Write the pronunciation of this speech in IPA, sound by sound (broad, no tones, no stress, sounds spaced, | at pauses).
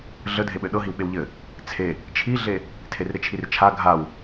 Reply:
ɮ ə dʱ e ɓ ɘ ɗ ɤ ɦ i w ɓ e w ʎ ɘ | t͡sʰ e | t͡ʃʰ i ɮ e | tʰ e r ɾ ɪ t͡ʃʰ i r t͡ʃʰ a ɡʱ a w